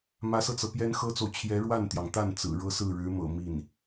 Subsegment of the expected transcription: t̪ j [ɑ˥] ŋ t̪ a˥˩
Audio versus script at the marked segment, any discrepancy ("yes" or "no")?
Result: yes